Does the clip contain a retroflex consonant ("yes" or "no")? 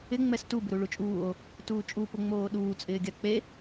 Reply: yes